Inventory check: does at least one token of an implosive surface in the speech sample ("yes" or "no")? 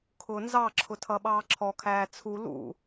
yes